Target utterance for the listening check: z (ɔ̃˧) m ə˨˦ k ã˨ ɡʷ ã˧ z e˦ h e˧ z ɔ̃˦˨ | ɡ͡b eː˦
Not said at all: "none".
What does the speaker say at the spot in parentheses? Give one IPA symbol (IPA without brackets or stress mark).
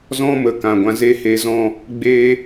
ɔ̃˦